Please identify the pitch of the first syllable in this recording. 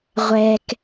low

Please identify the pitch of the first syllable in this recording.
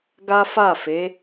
high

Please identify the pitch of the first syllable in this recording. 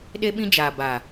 high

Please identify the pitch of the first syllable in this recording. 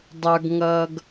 low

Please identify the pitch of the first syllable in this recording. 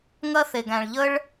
high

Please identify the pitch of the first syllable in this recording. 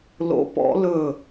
rising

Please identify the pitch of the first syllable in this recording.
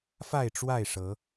falling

